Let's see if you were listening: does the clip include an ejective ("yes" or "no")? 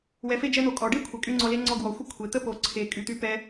yes